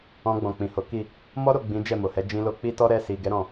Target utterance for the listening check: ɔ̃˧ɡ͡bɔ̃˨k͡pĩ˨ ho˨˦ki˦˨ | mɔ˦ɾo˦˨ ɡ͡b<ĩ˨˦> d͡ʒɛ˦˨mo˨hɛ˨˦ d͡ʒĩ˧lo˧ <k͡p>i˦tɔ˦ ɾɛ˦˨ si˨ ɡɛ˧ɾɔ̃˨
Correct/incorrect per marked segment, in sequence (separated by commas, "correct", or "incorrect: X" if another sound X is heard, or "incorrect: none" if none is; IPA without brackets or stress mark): correct, correct